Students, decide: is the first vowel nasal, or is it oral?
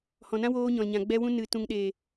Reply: nasal